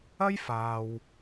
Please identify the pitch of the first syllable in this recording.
high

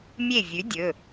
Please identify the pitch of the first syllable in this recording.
falling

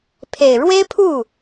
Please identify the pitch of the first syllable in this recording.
low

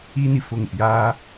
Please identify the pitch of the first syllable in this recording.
high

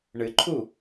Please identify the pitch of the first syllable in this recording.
low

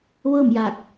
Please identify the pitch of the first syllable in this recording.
falling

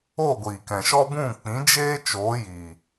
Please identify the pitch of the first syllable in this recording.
falling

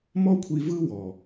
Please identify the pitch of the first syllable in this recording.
high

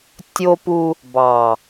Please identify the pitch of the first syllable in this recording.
high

